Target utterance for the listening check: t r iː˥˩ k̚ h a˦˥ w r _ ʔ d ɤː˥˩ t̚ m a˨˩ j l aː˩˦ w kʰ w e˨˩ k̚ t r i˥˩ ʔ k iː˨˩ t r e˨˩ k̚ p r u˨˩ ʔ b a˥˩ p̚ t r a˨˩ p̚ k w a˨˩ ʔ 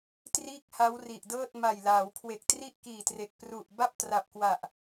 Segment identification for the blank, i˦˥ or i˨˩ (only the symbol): i˨˩